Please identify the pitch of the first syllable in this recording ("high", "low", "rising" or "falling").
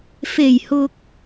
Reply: low